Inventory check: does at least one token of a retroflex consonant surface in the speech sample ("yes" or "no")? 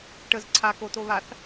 yes